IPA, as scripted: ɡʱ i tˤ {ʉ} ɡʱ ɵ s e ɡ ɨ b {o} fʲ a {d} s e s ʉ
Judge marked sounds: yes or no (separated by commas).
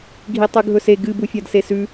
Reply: yes, no, yes